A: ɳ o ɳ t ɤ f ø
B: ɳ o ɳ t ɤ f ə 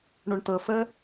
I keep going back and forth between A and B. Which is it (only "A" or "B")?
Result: B